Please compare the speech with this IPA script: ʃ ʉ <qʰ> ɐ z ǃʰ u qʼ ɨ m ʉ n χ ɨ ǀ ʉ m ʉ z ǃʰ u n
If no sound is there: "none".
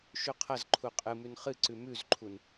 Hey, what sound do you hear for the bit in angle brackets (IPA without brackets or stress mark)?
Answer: qʰ